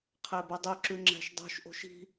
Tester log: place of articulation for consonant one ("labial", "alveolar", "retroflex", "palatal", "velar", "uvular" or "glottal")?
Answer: uvular